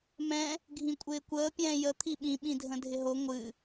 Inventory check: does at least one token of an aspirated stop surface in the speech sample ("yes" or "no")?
yes